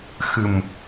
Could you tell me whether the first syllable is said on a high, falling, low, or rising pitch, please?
low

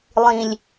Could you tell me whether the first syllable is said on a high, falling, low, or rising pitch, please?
low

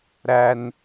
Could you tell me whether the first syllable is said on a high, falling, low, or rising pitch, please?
high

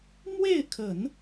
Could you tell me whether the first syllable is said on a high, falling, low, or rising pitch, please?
falling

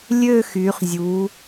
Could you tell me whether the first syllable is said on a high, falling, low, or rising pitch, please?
falling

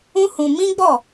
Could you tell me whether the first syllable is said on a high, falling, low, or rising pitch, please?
high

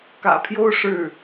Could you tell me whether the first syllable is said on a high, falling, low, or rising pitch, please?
low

